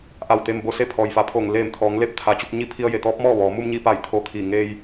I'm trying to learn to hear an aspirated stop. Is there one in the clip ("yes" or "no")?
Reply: yes